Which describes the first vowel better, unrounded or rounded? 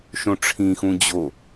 rounded